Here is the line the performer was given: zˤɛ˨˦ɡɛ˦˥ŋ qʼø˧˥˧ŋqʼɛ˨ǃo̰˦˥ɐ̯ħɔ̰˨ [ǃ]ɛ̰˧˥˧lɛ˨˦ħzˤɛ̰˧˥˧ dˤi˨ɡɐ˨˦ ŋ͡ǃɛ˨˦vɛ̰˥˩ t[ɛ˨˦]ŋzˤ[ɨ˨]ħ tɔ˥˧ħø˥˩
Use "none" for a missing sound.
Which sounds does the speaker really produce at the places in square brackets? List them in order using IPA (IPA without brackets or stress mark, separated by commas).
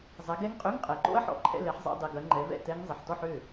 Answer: ǃʰ, ɛ˦˥, ɪ˨